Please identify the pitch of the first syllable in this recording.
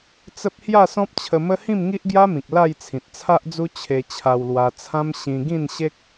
high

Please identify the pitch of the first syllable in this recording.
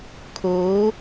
rising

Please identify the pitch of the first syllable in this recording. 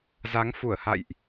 rising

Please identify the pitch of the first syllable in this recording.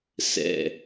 low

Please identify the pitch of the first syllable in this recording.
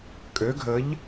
rising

